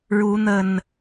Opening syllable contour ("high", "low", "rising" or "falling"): rising